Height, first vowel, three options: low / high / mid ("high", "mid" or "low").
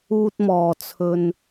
high